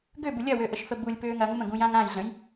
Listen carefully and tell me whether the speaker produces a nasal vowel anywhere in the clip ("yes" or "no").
yes